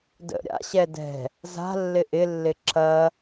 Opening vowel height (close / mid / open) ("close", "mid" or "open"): mid